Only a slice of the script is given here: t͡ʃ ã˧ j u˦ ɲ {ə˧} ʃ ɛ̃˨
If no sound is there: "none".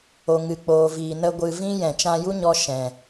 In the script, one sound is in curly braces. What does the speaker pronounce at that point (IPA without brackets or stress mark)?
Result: ɔ˧